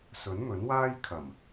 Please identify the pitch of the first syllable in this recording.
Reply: rising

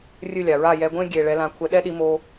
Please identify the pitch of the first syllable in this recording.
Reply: falling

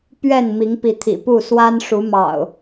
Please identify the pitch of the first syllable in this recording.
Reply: falling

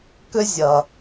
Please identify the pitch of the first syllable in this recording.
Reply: high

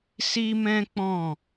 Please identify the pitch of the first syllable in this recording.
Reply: high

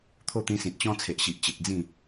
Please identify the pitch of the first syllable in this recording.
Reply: falling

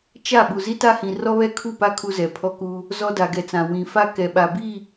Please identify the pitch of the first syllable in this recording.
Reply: falling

